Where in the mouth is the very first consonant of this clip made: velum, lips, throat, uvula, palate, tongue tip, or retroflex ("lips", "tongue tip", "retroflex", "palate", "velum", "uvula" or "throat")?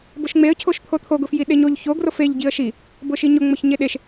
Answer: lips